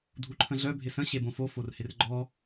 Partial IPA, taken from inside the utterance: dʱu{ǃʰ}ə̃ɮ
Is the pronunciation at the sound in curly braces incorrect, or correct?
correct